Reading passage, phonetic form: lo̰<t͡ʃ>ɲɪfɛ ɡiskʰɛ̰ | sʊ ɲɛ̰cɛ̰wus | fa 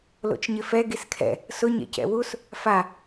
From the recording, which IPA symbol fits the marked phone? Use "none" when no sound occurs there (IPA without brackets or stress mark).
t͡ʃ